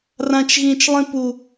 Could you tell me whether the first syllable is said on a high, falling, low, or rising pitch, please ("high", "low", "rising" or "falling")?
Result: low